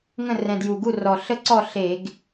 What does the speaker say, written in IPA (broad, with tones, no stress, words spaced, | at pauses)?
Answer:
ŋə̃˥˨rɛ̃˨˩dju˨˩ ɡu˥˨rɔ˨˩ ɬə˥˨ǀɔ˥˨ ɬe˧˩˧ɡ